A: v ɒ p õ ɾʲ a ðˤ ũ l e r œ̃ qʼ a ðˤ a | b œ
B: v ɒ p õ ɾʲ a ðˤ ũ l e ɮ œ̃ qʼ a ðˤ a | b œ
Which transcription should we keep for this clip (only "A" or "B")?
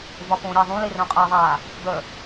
A